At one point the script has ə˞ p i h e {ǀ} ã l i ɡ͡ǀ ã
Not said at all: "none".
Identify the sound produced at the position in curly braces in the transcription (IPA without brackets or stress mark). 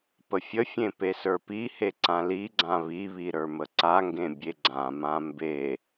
ǀ